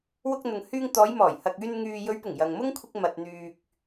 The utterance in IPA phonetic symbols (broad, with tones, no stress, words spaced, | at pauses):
wʊ˧k̚n̪ʊ˨ŋhyː˧ŋ t̪ɔː˨˧jmɔː˨˩jhɐ˨k̚ yː˧n ŋyː˨jɵ˨˧ɥpʊ˨˩ŋ jɐ˨ŋ mʊ˥ŋkʷʰɪ˧k̚ mɐ˨t̚n̪yː˨k̚